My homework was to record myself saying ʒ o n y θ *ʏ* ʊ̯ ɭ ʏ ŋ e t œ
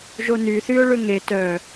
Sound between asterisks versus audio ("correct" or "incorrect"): incorrect